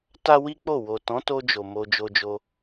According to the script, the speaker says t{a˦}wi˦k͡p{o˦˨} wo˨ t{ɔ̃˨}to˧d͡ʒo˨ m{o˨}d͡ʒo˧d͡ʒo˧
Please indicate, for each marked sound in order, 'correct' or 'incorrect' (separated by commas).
correct, correct, incorrect, incorrect